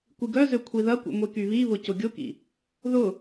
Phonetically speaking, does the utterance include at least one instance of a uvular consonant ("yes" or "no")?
no